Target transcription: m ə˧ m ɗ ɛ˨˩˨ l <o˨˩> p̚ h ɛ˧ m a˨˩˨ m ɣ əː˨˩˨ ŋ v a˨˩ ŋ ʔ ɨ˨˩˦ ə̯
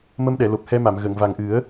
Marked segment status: correct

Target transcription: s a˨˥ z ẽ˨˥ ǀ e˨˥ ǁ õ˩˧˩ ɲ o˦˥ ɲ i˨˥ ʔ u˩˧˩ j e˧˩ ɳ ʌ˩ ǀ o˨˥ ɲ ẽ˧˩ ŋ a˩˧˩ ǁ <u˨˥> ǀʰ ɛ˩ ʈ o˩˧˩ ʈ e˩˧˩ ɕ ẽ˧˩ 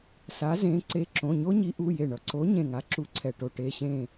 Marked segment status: correct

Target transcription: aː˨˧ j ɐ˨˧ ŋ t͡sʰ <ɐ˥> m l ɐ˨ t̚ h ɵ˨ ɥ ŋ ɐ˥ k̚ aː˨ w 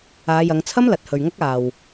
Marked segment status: correct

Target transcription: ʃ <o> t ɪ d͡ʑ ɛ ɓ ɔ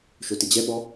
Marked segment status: correct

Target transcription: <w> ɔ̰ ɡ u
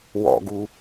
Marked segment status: correct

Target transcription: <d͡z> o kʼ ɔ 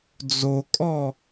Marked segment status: correct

